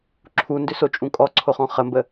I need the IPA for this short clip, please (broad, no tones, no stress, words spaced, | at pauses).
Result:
ǁʰundʏsot͡ʃʼũ kʼɔǀʰoχɔ̃ χəmbə